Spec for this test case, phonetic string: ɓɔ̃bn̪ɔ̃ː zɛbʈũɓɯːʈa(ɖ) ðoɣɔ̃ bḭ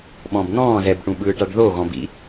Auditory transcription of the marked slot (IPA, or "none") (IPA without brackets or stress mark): ɖ